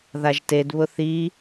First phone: ð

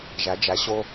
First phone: ʒ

